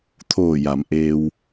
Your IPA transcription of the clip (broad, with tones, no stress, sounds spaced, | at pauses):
t̪ʰ oː˧˩ j a˩˧ m ʔ eː˧ w